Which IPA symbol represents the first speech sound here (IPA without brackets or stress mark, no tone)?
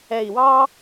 ɛ